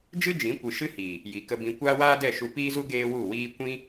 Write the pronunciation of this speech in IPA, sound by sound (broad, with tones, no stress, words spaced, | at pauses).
d͡ʒɨ˦d͡ʒĩ˨˦kʷɨ˨ ʃɨ˦hiː˨ | ji˨kə˧bĩ˧ kʷaː˦waː˦dɛ˦˨ ʃu˧piː˦zu˦ ɡeː˦wu˦˨wiː˦ kʷĩ˦